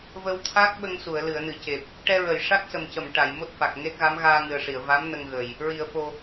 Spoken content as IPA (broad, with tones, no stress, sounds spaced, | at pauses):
v ə˧ w t̪ʰ a˦˥ k̚ ɓ ə˧ ŋ s u˨˩˨ ə̯ l ɨ˨˩˨ ə̯ n ɨ˨˩˨ c e˨˩ p̚ | ʈ ɛ˧ ɹ ə˨˩˨ j ʂ a˦˥ k̚ s ə˨˩ m c ə˨˩˨ m ʈ a˨˩˨ j m o˦˥ t̚ f a˨˩ k̚ ŋ e˦˥ t̚ ɣ a˧˥ m ɣ aː˧ ŋ ɨ˨˩ ə̯ ʂ i˨˩˨ ə̯ v a˧˥ m n ə˧ ŋ ɣ ə˨˩ j | ɹ i˨˩˨ ə̯ f o˨˩